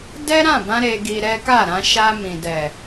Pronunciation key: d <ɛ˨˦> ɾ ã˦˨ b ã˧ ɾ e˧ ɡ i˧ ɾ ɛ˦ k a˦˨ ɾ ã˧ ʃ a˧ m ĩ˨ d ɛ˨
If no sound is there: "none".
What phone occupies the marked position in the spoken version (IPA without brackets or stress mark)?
ɛ˦